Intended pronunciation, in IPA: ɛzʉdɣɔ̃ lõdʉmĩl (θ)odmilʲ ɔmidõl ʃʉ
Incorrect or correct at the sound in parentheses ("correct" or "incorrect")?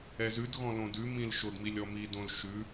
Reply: incorrect